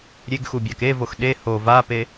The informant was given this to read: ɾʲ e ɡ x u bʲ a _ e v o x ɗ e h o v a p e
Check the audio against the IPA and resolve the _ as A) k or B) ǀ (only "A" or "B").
A